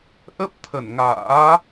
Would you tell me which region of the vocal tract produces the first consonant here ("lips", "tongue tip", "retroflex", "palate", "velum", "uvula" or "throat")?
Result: throat